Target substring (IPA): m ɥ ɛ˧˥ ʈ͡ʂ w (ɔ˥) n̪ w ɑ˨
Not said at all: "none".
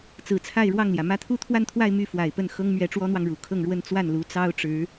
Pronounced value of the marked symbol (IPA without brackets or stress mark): ɔ˥